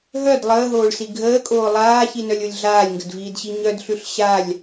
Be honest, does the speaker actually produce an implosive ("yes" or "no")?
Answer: no